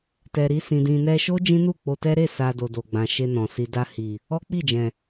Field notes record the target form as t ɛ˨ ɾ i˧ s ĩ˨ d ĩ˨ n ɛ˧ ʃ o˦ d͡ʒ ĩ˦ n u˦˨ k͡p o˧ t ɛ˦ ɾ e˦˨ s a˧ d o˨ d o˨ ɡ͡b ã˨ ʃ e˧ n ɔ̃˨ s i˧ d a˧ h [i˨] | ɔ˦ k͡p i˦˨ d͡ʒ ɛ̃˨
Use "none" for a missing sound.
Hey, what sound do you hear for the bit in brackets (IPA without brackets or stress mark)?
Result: i˨